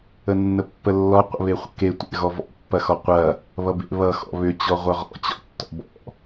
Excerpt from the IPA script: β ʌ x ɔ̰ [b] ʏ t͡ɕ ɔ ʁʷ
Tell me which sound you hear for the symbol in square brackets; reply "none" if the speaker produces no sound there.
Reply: β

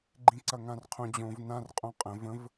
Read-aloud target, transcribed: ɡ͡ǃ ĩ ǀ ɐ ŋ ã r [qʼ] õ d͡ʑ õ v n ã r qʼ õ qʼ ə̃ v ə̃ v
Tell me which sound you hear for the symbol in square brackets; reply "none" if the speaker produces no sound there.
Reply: qʰ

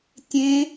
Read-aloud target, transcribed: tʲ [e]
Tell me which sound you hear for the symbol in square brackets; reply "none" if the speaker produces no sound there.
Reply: ẽ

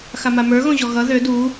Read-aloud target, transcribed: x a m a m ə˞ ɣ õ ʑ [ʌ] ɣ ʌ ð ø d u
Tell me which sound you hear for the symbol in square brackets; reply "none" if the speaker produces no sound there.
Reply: ɔ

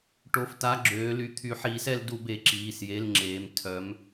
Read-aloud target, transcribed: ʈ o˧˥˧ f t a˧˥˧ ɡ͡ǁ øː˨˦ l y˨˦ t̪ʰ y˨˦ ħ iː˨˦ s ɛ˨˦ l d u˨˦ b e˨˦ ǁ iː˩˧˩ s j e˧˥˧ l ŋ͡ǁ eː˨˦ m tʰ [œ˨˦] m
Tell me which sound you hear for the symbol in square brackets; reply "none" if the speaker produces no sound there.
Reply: œ˨˦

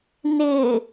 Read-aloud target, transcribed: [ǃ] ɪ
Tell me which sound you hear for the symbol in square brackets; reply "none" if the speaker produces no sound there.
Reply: n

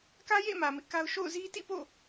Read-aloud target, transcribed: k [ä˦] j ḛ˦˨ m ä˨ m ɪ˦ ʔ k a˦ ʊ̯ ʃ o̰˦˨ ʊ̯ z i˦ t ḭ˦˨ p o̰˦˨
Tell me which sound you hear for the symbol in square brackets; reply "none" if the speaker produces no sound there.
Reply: ä˦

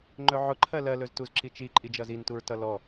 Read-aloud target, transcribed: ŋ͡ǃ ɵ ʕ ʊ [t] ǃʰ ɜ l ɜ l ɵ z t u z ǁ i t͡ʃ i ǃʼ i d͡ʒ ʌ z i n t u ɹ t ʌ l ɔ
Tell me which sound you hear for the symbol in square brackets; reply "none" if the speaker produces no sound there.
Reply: none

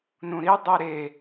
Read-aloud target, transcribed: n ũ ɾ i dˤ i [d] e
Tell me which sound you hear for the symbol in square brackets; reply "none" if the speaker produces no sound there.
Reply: ɾ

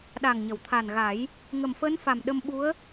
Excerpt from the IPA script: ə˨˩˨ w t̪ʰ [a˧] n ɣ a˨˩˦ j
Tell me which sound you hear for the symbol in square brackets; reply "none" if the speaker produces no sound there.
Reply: a˨˩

